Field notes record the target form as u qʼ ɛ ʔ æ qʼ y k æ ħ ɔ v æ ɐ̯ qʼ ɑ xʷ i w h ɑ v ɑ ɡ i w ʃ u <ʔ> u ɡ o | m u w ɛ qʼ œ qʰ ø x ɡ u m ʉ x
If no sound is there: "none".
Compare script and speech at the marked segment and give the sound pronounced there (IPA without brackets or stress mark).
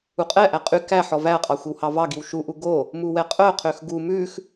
ʔ